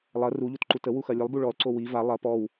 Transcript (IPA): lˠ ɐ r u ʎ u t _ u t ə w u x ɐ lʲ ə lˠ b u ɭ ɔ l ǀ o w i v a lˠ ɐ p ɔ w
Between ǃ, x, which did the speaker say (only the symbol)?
ǃ